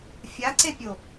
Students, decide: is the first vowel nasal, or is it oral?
oral